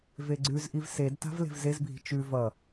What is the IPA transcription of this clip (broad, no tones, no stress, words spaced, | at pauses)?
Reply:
veɡ͡ǀʉzʔiv sedta̤v le̤vzezbʱi̤ t͡ʃʉ vʌ